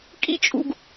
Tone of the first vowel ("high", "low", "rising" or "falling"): high